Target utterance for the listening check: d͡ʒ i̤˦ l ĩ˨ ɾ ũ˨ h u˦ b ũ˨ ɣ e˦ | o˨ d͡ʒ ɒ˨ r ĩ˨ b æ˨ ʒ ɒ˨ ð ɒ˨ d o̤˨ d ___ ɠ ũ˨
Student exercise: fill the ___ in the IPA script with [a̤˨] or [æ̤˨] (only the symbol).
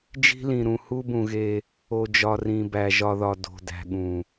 æ̤˨